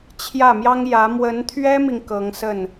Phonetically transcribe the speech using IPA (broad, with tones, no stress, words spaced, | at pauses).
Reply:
t͡ɕʰjä˥˩mjɑ˥ŋ jä˧˥ mwə˧˥nt̪ʰɥɛ˥mi˨ŋ kɤ˧˥ŋsə˥˩n